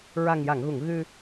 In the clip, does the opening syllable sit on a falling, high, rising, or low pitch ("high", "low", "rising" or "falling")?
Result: low